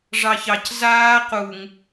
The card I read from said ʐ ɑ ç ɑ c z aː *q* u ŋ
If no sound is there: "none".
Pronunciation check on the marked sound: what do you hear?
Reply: q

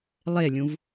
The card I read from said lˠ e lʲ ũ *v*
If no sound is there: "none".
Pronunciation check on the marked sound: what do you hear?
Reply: v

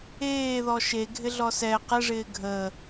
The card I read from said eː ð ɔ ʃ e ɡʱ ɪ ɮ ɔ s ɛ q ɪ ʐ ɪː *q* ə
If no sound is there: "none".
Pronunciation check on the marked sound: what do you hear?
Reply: ɡʱ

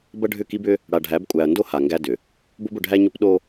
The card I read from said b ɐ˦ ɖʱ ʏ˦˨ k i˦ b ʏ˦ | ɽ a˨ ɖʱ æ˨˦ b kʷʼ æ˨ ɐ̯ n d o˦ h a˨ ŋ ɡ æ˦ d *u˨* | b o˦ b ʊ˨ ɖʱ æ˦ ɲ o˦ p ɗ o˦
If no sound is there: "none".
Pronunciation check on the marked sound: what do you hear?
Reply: ʏ˨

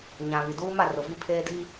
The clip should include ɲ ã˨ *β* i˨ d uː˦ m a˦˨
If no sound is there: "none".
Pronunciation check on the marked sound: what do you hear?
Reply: β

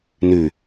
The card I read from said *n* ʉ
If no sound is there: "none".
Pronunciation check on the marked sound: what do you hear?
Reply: n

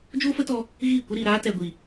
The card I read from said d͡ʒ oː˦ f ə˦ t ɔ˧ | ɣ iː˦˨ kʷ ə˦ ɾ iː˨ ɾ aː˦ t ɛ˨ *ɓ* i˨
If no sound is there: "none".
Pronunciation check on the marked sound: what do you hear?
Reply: ɡʷ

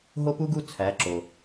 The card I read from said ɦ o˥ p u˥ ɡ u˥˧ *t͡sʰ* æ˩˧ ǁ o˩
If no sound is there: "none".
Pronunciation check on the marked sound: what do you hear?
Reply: t͡sʰ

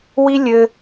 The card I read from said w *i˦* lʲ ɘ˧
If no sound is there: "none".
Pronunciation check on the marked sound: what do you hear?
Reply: i˦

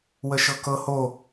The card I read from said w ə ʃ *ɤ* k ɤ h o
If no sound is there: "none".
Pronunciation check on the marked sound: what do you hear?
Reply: ɤ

